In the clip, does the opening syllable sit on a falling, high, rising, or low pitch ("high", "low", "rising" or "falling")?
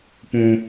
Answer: high